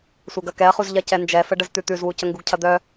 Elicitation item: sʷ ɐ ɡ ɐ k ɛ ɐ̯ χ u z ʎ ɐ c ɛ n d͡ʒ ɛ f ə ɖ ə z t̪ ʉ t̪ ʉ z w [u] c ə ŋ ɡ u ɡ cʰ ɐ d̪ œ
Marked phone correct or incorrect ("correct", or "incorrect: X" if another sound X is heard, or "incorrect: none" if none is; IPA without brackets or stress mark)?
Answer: correct